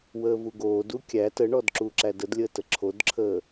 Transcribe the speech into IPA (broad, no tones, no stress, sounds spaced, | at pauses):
w əː v u ɡ oː d u kʲ æ t ə ɳ ɔ d ǁ uː ǁ æ d ə d lʲ əː t ə ǁʰ o d ǁʰ əː